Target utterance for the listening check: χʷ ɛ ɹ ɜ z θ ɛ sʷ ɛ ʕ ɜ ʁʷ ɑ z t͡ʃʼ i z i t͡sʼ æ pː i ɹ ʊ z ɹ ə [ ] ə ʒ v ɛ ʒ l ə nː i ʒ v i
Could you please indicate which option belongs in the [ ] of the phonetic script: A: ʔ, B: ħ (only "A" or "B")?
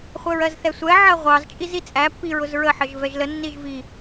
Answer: B